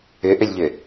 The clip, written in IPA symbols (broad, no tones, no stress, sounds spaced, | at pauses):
ʏ ʔ ʏ lʲ ʎ ʏ